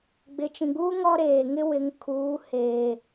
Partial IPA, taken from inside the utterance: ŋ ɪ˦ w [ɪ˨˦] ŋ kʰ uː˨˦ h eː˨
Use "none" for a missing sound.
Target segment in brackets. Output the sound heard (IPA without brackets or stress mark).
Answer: ɪ˨˦